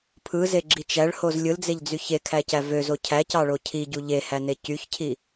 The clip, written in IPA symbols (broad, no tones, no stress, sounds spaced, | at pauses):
pʰ ɯ z e ɡ͡ǁ i t͡ʃ æ ɭ h o z lʲ ɯ l d͡z e ʎ d͡z y ç e kʰ æ c æ v ø z o cʰ æ c ɑ ɭ o cʰ i ɟ u ʎ e h æ n e c y ç cʰ i